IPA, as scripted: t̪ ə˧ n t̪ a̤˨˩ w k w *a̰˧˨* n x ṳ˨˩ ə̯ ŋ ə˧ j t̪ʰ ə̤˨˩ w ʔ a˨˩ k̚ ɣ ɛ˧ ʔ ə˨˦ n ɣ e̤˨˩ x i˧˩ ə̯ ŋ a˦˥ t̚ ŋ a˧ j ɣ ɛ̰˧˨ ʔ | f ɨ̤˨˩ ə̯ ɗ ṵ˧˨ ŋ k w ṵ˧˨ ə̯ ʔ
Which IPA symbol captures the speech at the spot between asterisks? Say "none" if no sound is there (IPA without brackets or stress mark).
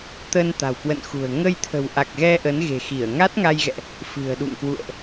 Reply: ə̰˧˨